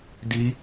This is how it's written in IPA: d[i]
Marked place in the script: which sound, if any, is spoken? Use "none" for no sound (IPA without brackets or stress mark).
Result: i